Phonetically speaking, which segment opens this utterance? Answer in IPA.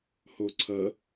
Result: h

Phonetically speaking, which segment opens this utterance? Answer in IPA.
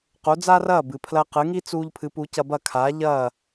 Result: q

